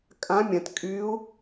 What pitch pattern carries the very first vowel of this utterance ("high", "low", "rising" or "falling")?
rising